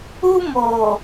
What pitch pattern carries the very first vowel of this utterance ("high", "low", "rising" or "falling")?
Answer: high